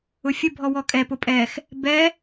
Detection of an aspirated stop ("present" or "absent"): absent